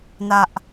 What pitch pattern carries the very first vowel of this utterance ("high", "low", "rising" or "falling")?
high